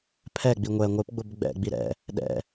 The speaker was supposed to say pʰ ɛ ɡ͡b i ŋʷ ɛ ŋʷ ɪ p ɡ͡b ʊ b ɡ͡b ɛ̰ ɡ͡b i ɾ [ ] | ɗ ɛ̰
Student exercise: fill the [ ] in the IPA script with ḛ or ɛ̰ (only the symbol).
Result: ɛ̰